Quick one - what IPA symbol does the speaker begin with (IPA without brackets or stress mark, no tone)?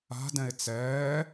a̤